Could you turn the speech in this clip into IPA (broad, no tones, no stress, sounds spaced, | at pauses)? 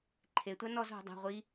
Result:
ǃʰ e tʷ a n ɔ z ɦ ṳ dˤ a̤ ʁʷ i